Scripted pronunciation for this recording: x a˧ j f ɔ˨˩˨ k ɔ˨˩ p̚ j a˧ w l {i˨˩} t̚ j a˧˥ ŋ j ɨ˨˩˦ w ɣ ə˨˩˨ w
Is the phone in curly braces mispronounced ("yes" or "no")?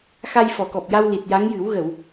no